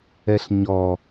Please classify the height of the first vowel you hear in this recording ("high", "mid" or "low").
mid